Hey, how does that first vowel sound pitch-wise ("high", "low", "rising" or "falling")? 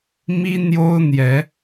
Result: high